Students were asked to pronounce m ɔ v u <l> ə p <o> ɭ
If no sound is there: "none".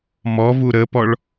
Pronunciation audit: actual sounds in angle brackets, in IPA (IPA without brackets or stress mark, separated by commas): ɾ, ɔ